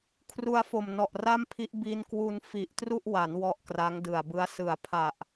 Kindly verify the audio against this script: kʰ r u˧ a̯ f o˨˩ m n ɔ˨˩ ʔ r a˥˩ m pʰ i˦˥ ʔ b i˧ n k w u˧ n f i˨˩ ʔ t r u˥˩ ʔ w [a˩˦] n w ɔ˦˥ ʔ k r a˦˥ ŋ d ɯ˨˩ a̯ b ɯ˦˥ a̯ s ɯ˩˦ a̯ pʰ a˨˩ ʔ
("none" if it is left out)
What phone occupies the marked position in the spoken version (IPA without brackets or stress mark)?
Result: a˩˦